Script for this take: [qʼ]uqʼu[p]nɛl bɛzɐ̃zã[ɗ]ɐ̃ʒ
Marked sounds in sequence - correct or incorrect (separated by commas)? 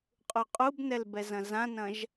correct, incorrect, incorrect